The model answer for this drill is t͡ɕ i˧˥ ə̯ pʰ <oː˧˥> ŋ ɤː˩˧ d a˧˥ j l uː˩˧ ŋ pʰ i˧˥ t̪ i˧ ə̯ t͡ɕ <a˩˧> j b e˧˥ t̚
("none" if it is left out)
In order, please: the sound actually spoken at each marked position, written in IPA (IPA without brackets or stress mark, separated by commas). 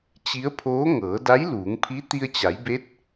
oː˧˥, a˩˧